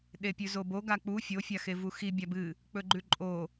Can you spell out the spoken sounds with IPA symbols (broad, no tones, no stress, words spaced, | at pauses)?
ɗepʲʉzobo ɡak͡pu fʲo fʲaxevuxi bʲabɨ | k͡pɵɡ͡ǃʉǃʼo